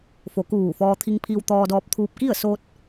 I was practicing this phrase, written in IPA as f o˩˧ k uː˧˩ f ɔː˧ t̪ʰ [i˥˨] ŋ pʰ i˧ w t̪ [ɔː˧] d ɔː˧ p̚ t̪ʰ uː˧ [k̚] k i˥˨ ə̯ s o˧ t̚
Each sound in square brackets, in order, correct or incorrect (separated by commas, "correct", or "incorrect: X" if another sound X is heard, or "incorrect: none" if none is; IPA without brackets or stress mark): incorrect: i˧, correct, incorrect: p̚